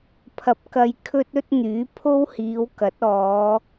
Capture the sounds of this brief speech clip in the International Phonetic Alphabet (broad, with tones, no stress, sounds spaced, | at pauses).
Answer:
pʰ ɐ˨ p̚ k ɐ˧ j kʰ ɵ˥ t̚ ɵ˥ t̚ n̪ yː˨˥ pʰ o˥ w h iː˨˧ w k ɐ˨˥ t̚ ɔː˨˧